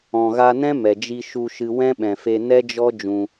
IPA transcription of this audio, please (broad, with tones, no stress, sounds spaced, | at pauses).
ɔ̃˨ ɣ a˧ n ɛ̃˦ m ɛ˨ d͡ʒ i˧ ʃ u˧ ʃ ɨ˧ w ɛ̃˦ ɓ ɛ̃˨ f e˧ n ɛ˦ d͡ʒ ɔ˦ d͡ʒ ũ˧